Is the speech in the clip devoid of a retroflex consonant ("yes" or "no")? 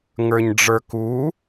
no